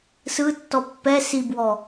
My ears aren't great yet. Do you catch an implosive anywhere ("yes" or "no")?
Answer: no